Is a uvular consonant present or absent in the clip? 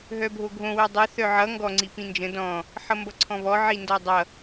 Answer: absent